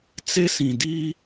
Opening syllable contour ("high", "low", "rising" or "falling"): high